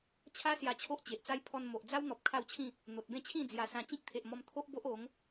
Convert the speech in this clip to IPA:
t͡ɕʰ a˦ s j a˧ t͡ɕʰ o˦ ʔ t͡ɕ e˨ ʔ t͡s a˦ j pʰ ɔ˧ n m o˨ ʔ d͡z a˦ w n̪ ɔ˨ p̚ kʰ a˥˧ w t͡ɕʰ ĩ˥˧ | n̪ o˨ t̚ b ẽ˥˧ t͡ɕʰ ĩ˥˧ d͡z j a˧ s ã˧ t͡ɕ ĩ˦ k̚ t̪ʰ e˨ ʔ m ɔ˧ m t̪ʰ o˦ ʔ b o˦ ʔ o˨˦ ŋ

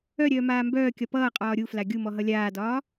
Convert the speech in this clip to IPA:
œ ɾʲ œː m aː m b œː kʲ ɒ p ʌː qʼ ɒː ɾʲ u f l a ɡʲ u m ɔ ɦ ʌ lʲ aː d ɒː

